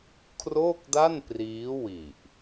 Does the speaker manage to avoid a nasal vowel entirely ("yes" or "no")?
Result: yes